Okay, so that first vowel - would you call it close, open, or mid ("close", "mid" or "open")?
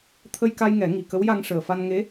mid